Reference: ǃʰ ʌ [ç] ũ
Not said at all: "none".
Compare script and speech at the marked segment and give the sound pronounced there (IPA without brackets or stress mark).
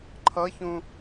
ç